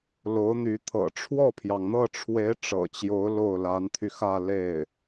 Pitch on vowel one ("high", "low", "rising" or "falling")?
rising